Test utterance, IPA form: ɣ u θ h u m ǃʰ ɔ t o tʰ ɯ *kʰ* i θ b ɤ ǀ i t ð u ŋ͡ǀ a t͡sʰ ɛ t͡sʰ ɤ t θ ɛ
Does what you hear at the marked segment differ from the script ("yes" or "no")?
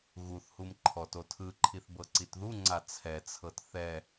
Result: yes